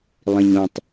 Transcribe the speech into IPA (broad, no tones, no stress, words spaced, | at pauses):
lˠĩɲõtˤ